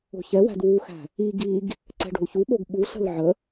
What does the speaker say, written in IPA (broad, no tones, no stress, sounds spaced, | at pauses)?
o̤ ç ɛ w æ̤ d w u x æ̤ | i ɡ i ɡ | ǀ ɛ̤ ɖ o̤ l ç u ɓ o ɡ ɓ u ɬ ə̤ l ʕ ə